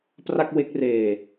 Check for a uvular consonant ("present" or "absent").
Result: absent